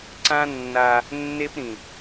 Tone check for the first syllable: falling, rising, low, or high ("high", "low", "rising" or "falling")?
high